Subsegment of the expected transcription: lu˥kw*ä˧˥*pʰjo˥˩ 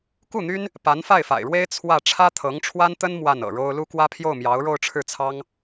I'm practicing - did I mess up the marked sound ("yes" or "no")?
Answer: yes